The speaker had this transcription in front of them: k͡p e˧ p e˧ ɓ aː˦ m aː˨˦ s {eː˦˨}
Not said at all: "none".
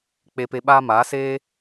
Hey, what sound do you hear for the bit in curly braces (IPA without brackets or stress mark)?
eː˦